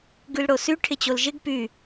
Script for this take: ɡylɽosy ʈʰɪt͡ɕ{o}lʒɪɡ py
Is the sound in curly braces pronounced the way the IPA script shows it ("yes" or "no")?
yes